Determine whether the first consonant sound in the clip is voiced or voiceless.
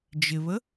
voiced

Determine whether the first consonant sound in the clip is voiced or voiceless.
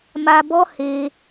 voiced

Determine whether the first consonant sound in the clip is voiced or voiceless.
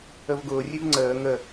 voiced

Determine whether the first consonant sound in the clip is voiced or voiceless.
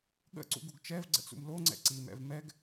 voiced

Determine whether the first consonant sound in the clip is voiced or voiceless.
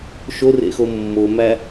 voiceless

